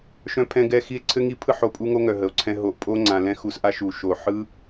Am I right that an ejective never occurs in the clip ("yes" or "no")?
no